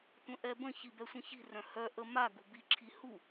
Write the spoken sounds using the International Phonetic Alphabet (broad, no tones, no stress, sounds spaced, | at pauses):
tʷ ə̃ ʔ ɛ b ə̃ ç i b ɛ sʷ ə̃ ç i̤ r œ̃ h œ ʔ ə m a ɡ ṳ b i ǁʰ i h u